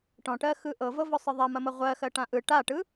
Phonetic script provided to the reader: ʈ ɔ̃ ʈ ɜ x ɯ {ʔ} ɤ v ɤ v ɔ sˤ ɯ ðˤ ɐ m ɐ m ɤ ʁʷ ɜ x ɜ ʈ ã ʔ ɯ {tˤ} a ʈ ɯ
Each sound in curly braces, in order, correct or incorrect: correct, incorrect: ʈ

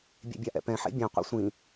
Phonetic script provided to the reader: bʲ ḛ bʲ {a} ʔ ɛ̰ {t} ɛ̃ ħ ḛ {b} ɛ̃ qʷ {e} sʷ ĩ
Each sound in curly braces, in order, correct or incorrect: correct, incorrect: p, incorrect: bʲ, incorrect: ḛ

